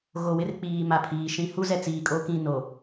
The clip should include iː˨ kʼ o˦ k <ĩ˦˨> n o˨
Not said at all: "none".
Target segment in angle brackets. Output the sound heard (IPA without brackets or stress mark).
ĩ˦˨